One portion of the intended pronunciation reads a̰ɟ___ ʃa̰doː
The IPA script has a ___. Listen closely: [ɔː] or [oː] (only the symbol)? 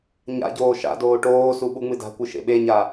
oː